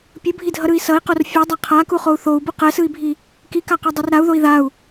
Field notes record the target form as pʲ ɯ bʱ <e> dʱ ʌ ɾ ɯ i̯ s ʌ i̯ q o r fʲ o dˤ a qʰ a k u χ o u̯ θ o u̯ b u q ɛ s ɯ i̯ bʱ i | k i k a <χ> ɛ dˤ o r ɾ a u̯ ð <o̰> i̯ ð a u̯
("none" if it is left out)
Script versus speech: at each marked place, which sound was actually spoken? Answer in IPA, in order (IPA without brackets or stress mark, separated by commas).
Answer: i, q, o